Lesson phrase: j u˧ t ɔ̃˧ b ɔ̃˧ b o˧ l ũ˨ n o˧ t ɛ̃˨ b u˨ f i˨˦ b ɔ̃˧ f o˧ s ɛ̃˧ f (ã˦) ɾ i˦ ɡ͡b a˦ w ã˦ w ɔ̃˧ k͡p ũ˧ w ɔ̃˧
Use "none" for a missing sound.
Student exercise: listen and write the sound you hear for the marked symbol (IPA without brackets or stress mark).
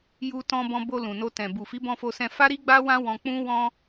a˦